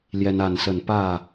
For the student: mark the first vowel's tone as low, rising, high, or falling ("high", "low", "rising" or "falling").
high